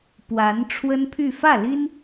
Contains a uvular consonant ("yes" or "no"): no